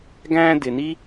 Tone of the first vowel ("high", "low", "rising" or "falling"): high